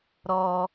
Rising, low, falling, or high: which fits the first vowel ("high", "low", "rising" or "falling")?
low